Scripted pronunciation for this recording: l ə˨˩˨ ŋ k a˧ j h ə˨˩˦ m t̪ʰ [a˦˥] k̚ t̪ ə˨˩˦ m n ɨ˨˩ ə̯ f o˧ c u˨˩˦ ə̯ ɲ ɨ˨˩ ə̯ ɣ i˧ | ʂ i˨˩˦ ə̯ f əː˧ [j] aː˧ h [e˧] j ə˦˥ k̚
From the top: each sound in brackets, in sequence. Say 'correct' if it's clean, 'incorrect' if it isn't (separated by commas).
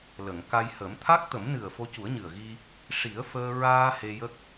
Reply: correct, incorrect, correct